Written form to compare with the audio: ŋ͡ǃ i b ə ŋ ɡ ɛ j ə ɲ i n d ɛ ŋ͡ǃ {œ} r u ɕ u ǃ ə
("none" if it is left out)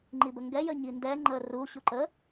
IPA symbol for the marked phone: ə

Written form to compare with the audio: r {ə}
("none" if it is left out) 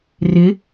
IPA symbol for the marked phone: ɪ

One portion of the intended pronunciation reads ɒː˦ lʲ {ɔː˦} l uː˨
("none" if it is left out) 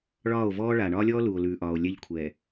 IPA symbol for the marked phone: ɔː˦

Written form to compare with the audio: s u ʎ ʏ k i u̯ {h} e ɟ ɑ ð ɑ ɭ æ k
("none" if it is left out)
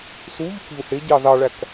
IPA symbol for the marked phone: h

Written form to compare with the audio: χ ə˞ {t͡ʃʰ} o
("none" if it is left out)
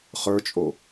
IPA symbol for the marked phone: t͡ʃʼ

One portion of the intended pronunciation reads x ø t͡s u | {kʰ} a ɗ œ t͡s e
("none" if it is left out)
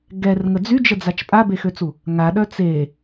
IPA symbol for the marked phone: ŋ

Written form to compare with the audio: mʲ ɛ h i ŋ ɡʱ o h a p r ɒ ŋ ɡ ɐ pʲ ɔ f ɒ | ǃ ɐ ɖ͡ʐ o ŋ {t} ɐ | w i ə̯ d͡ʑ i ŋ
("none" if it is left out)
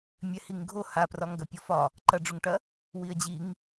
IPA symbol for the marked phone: ʈ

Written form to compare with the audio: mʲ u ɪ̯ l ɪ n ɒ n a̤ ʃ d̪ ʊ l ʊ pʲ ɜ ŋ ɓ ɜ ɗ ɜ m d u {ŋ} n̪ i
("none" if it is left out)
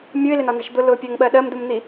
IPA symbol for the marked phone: m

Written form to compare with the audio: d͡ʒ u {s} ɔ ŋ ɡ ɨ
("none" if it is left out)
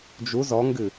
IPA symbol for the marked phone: z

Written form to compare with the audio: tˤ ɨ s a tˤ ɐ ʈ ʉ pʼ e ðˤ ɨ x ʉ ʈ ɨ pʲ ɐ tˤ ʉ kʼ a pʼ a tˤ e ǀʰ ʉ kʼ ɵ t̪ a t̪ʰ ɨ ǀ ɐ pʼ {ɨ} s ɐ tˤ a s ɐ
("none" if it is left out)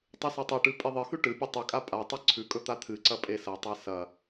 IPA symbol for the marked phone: e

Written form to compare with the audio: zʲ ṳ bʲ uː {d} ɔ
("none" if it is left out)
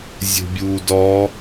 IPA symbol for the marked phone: d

